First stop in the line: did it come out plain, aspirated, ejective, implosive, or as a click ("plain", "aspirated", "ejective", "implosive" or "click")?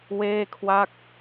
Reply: aspirated